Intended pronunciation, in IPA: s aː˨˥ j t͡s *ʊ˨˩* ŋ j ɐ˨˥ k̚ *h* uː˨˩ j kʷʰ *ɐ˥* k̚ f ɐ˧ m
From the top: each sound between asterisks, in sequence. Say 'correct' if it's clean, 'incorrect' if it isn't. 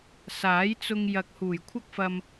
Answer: incorrect: ʊ˧, correct, correct

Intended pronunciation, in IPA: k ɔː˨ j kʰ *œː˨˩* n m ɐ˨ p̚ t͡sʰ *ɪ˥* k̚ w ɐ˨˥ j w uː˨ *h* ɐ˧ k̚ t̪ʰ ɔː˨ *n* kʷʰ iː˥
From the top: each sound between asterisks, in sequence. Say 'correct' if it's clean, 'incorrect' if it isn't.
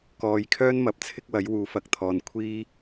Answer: incorrect: œː˥, correct, incorrect: f, correct

